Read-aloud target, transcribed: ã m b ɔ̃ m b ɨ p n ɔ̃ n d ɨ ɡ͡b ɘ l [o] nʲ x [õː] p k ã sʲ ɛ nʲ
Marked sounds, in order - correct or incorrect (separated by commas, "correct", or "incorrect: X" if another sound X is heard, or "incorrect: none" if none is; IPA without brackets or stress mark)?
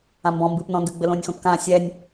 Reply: incorrect: õ, incorrect: õ